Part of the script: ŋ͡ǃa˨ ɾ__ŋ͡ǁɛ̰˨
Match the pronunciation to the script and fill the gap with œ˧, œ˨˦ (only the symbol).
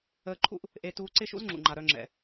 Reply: œ˧